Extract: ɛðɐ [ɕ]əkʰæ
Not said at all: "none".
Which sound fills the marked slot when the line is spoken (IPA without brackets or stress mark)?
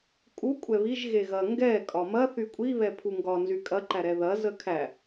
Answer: z